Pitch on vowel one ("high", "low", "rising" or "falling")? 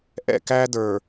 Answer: falling